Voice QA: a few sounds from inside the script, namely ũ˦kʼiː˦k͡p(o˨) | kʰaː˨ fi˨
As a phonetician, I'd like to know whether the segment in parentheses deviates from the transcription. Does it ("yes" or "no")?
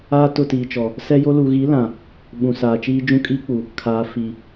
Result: yes